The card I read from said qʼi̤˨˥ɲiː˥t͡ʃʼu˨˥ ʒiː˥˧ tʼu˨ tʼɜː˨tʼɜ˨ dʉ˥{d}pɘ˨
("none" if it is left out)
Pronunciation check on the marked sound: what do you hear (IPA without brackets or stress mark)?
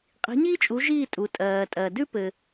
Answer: none